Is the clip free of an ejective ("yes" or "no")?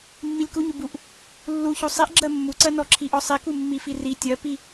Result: yes